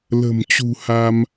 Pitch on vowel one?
low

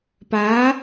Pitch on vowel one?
rising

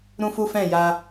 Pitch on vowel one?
high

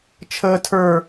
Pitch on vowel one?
high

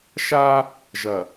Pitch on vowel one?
high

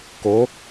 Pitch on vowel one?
rising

